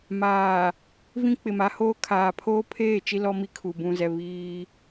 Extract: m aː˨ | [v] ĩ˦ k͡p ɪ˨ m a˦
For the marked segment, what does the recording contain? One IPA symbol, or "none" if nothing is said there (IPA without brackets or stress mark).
v